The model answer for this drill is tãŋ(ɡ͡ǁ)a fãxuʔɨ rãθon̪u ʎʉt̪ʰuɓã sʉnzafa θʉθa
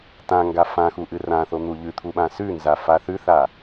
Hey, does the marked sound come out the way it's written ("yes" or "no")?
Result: no